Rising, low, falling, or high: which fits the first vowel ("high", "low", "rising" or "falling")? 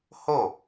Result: falling